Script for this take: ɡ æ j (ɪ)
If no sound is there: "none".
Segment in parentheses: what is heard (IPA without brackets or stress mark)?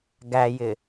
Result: ɪ